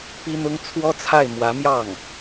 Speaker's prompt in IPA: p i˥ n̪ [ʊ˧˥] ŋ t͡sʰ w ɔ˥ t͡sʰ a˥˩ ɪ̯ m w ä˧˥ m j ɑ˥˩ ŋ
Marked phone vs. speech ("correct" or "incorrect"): incorrect